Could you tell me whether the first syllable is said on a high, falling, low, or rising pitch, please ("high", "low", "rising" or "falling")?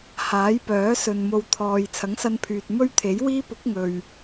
rising